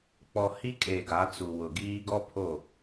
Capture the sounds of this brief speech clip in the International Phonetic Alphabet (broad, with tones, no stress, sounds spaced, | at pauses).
k͡p ɔ˨ h i˦ kʼ eː˨ ɡ a˨˦ t͡s u˨ w ʊ˨ ɡ iː˦ ɡ ɔ˦ pʰ o˦˨